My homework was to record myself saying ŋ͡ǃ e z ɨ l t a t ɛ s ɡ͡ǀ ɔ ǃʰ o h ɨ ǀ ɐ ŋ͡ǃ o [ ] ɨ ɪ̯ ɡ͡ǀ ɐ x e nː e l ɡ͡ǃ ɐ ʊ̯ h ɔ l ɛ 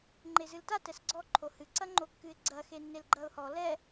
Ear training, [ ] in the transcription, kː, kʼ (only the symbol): kː